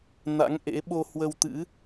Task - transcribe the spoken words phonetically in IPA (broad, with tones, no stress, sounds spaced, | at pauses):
n a̰˧˥ ŋ ʔ ḛ˧˥ ɓ o˧ h w ə˧ w t̪ ɨ̰˧˥